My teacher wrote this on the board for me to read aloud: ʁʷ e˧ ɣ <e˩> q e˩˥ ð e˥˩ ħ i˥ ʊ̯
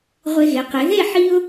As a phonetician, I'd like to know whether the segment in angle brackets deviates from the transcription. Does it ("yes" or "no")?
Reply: yes